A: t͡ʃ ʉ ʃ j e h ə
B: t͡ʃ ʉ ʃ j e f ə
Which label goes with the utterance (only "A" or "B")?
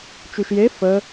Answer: B